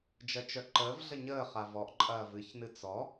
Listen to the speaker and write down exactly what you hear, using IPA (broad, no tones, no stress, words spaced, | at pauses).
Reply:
d͡ʒɜt͡ʃœǃəːvɮə ɲəːχa vɔʔǃʼɐː vɨçnɨ t͡sɔ